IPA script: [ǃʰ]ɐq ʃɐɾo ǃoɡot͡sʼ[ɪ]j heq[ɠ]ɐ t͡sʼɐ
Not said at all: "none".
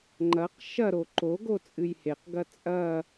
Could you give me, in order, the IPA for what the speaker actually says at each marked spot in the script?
ŋ͡ǃ, ɨ, ɡ

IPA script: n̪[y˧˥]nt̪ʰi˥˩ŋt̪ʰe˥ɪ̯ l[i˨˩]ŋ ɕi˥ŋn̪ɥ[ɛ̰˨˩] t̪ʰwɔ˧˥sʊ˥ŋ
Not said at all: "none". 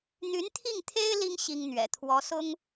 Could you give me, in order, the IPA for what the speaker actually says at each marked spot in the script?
y˧˥, i˥, ɛ̰˨˩

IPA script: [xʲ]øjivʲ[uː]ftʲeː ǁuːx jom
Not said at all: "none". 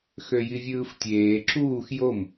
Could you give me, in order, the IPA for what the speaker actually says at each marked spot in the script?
x, ɯː

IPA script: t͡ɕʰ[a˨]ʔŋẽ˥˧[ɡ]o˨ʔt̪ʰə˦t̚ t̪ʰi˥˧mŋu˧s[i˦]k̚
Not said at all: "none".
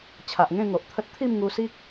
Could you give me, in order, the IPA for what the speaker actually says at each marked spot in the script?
a˨, ŋ, i˦

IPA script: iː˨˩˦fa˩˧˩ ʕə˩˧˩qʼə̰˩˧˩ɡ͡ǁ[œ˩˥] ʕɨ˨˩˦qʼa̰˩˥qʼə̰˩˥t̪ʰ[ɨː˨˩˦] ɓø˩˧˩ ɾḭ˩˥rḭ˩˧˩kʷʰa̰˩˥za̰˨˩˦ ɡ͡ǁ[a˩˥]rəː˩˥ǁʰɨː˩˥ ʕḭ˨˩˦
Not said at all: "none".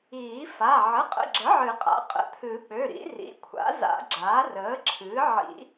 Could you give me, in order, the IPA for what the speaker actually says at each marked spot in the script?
ə˩˥, ɨ˨˩˦, aː˩˥

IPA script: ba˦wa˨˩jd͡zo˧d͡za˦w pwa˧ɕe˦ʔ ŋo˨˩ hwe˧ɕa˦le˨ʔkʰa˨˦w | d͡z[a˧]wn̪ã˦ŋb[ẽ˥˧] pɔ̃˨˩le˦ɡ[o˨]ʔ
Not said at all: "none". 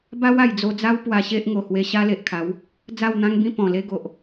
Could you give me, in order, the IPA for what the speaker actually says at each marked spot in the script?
a˥˧, ĩ˥˧, o˨

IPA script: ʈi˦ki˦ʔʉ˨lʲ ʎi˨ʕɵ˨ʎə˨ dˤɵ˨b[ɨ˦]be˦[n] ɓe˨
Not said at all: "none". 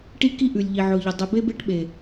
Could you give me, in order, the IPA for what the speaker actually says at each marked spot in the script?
e˦, ʈ

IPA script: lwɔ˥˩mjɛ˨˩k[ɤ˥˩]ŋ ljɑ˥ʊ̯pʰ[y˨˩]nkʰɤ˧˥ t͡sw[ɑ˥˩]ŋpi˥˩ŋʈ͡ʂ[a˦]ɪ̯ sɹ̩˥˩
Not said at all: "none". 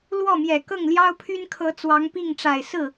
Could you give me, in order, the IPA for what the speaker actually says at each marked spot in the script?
ɤ˥˩, y˥, ɑ˧˥, a˨˩

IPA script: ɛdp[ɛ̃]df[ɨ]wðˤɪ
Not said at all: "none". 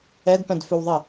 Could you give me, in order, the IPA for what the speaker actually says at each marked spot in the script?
ɛ̃, ʏ

